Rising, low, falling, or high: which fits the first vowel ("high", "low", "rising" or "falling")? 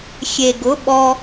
low